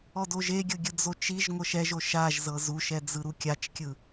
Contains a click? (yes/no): no